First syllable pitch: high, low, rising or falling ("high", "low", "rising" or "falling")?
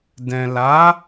low